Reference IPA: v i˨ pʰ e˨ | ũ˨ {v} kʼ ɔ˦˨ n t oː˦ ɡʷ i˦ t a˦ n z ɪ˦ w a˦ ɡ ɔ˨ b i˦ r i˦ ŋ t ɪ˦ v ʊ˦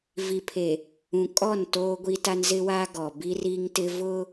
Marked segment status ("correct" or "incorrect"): incorrect